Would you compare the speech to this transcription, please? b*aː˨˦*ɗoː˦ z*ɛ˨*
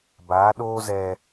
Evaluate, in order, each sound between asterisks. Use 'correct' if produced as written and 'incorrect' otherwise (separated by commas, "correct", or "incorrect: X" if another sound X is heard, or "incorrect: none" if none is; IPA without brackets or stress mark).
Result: correct, incorrect: ɛ˦